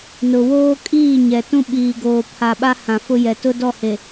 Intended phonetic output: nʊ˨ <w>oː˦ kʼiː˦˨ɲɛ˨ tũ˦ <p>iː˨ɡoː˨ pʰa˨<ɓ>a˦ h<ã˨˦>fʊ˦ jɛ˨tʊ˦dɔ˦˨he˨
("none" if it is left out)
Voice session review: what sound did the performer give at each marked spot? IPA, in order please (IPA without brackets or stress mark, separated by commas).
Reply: w, ɓ, ɓ, ã˨